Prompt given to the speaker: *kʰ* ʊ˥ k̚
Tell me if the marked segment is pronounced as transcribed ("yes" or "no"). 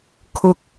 yes